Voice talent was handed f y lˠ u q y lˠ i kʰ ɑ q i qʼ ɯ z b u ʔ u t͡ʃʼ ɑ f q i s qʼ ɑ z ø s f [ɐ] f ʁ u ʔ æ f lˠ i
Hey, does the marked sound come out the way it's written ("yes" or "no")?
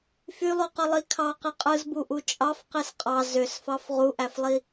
no